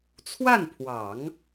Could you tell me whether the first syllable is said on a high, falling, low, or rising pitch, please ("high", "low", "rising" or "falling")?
falling